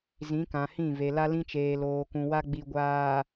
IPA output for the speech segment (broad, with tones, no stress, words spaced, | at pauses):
zĩ˨˦kã˨hĩ˦˨ve˨ la˦lĩ˦t͡ʃeː˨ loː˨kũ˨wa˦ ɡ͡bi˨ɡʷaː˨